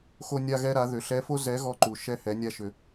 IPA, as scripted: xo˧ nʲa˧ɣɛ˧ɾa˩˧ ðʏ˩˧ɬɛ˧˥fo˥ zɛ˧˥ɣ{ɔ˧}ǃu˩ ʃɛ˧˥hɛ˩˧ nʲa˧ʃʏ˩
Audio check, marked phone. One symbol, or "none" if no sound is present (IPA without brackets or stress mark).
ɔ˧